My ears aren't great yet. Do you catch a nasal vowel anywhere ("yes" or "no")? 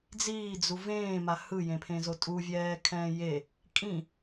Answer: yes